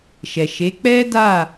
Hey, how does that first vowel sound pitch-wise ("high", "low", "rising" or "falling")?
low